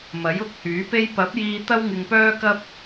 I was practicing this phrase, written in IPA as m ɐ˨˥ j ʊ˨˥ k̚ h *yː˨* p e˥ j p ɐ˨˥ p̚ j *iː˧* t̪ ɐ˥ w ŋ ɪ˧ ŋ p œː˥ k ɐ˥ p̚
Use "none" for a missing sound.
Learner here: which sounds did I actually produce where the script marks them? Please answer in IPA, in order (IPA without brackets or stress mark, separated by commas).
yː˨˥, iː˧